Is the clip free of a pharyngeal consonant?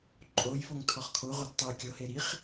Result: yes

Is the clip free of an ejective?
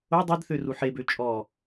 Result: no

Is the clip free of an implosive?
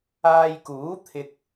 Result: yes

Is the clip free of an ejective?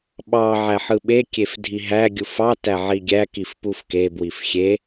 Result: yes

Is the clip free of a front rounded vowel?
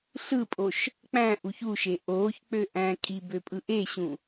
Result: no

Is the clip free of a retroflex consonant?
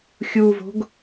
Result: yes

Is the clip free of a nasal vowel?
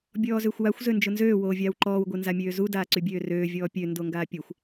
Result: yes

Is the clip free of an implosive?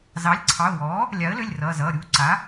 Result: yes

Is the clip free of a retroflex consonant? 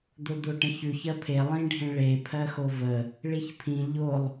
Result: no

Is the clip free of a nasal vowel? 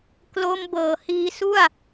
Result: yes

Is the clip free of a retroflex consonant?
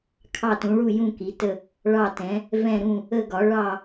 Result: no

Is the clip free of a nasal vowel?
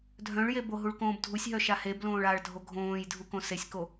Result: no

